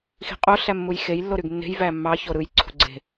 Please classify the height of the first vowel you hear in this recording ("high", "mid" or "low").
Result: high